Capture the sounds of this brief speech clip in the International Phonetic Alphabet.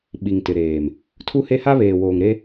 ɓ i˨ ŋ t ɪ˨ ɾ eː˨ m | tʰ u˦ h e˦ h a˦ β eː˨ w oː˨ ŋ ɾ e˦

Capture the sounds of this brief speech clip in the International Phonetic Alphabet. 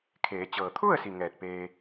kʰ eː˩˧ t͡ɕ ɤː˩ t̪ʰ u˥˨ ə̯ s i˩ ŋ ɛː˧˩ t̚ p eː˧

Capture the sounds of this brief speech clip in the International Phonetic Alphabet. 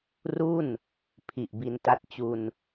r u˥˩ n | pʰ i˨˩ ʔ b i˧ n t a˦˥ t̚ t͡ɕ u˧ n

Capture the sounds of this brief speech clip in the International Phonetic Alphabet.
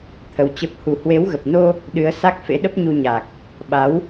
t̪ʰ ə˨˦ w t͡ɕ ə˦˥ p̚ h u˧ h w e˨˦ w ɣ ə˨˩ p̚ n o˧ | ɗ ɨ˨˦ ə̯ s a˦˥ k̚ f ḛ˧˥ ɗ ə˦˥ p̚ ɲ u˧ ɲ a˨˩ k̚ | ɓ a˨˦ w

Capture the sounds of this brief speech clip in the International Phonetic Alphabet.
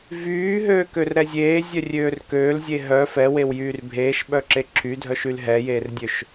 v yː ɦ øː k ø r ɾ ɛ zʲ eː zʲ œ rʲ øː r k øː l zʲ e ɦ œ f ɛ w e w j yː r bʱ eː ʃ ɓ œ ǁ e ǁʰ y dʱ œ ʃ y l ɦ ɛ j eː r dʲ ø ʃ

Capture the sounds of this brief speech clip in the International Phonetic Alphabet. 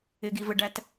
ɪ ɡ i v ə ɖ æ t

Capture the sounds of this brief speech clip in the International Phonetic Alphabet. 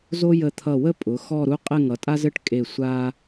z o˥ j ə˧˩ t̪ʰ ʌ˧˩ w ə˥ pʼ ʊ˩˧ x ɔ˥˧ ɾ u˥ qʼ ɘ˥˧ ŋ ʌ˩˧ tʼ a˥ z ɘ˥˧ ʈ kʼ e˧˩ sʷ a˧

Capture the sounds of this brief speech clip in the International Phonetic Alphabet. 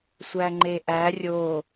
sʷ æ ŋ͡ǃ e ʔ æ rʲ o

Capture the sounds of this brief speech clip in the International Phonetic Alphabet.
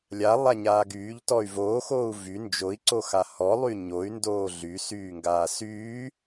lʲ a lˠ a ɲ aː ɡ yː ʎ t ɔ y̯ v oː x oː u̯ v y n d͡ʒ o i̯ ǀ o x a h ɔ lˠ y ɲ o y̯ n d oː ɮ y s yː ŋ ɡ aː s yː

